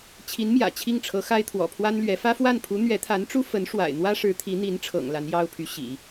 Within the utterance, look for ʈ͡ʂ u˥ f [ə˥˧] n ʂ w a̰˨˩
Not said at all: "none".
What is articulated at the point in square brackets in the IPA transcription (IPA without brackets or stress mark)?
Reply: ə˧˥